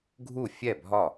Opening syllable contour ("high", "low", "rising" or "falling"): falling